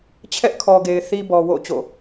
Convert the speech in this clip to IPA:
t͡ɕʰ ɛ˦ ʔ kʰ ɔ˨ ɡ e˨ ɪ̯ θ i˦ b ɔ˨ w o̰˦˨ t͡ɕ o̰˦˨

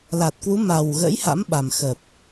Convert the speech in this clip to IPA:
l a˨˩ t̚ k w u˨˦ m a˨˩ w ɣ ə̰˧˥ j h a̰˧˥ m ɓ a˨˩ m x ə˨˩ p̚

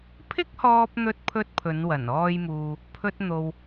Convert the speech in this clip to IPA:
pʰ ɪ˥ k̚ h ɔː˧ p̚ n̪ ɵ˧ t̚ pʰ ɵ˧ t̚ pʰ ɵ˨˧ n w ɐ˨˩ n ɔː˧ j m uː˨ | pʰ ɵ˧ t̚ n̪ o˨ w

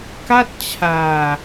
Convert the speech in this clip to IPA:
k a˥˩ t̚ t͡ɕʰ aː˧

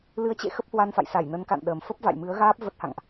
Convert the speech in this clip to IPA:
l ɨ˨˦ ə̯ t͡ɕ ḛ˧˨ x ə˦˥ p̚ h w a˧ n f a̰˧˨ j s a˧˩ j n ə˨˦ n k a̰˧˨ n ɗ əː˨˩ m f ə˦˥ p̚ v a̰˧˨ j m ɨ˨˦ ə̯ ɣ aː˦˥ p̚ v ə˦˥ t̚ h a̰˧˨ ŋ ʔ

